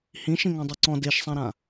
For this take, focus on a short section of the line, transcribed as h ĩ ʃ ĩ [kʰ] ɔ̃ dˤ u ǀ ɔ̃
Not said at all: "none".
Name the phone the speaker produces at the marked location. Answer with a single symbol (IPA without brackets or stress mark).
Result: ŋ